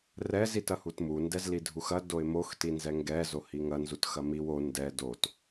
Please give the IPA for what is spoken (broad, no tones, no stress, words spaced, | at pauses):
rɛz itɐhutmu ndɛzlidʱuxɐ doɪ̯mox tinzɛŋɡɛ zohiŋɐ nzutxɐmiw o ndɛ dot